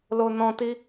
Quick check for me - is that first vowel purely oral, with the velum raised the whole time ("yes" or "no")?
yes